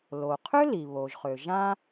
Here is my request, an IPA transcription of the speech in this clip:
l o˩ qʰ ø˥ l i˩ β o˩ ʒ χ ø˩ ʒ ã˥

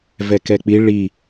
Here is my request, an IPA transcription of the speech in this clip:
v ɛ k ɛ k͡p i ɭ i

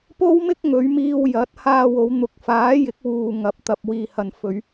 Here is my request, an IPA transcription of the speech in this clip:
p o˥ w m ɪ˥ k̚ ŋ ɵ˨˧ ɥ m iː˧ w j ɐ˨˥ t̚ h aː˧ w o˨˧ w n̪ ʊ˨˥ k̚ f aː˨˥ j ɪ˨˥ k̚ w uː˨ ŋ ɐ˨˥ p̚ t̪ ɐ˨ p̚ w iː˨ h ɐ˨ n f ɵ˨˧ ɥ

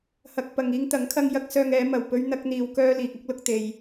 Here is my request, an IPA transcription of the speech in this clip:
h ɐ˧ k̚ p ɐ˨ ŋ iː˧ ŋ t̪ ɐ˨˥ ŋ kʰ ɐ˧ ŋ j ɐ˥ k̚ s œː˧ ŋ ɛː˨˥ m ɐ˨˩ w p ɵ˧ ɥ n̪ ɐ˧ k̚ n̪ iː˨ w k œː˧ l iː˨ k̚ ɐ˥ k̚ l ʊ˧ k̚ t̪ e˨ j

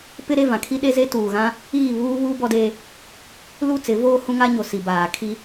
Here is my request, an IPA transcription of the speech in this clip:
p ɪ˦ ɾ e˦˨ v ã˨ kʰ i˦ ɗ e˦ z e˦ t uː˨ ɣ ã˦ | iː˦˨ β uː˦ β uː˦ b ɔ˦ d eː˦ | l u˦˨ t͡s ɪ˨˦ v oː˦ h ũ˦ ŋ a˦ ɲ o˨ s i˨ b aː˨ kʰ i˦

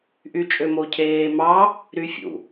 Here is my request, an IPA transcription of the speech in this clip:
ʔ y t͡ʃʼ ø m o cʰ eː m ɑ | ɾ y fʲ ṵ

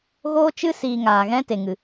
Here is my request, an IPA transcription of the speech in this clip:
ɣ oː˦ t͡ʃ ɨ˦ s iː˧ ŋ aː˨ ɣ ɛ̃˦ t e˨ ŋ ɨ˨

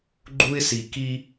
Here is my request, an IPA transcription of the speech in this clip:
ɡ͡ǃ u˦ ɪ̯ s i˨ k i˦

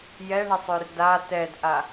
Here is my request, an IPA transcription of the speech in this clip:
j ɛ ɳ ə sˤ ø r d a t ɛ d ʔ a

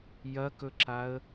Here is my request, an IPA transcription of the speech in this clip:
j ɐ k ɵ ǁ a ə̯

